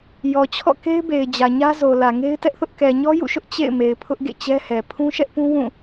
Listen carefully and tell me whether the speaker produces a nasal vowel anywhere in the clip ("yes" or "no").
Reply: yes